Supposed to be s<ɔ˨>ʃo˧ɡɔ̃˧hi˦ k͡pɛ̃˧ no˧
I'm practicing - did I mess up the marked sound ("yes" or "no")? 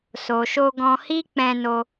yes